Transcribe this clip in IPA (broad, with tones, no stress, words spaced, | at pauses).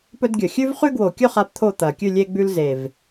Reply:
pɵ˦dɡʲɵ˨˩ xʲʉ˦vχʉ˦ɡwo˨˩kʲɵ˥˨ χa˦pt̪ʰo˥˨t̪ɐ˨˩ kʲʉ˥˨lʲe˦ ɡ͡bʉ˦lze˨˩v